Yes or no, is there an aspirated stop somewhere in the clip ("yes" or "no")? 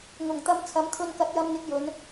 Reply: yes